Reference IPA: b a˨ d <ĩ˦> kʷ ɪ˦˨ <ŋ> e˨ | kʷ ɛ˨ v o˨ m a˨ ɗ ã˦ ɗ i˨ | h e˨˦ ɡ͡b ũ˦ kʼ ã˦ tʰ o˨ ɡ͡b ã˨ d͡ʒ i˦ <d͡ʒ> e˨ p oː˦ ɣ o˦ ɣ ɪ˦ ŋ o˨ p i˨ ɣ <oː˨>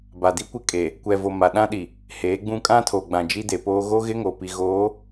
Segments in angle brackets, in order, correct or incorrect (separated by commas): incorrect, incorrect, incorrect, incorrect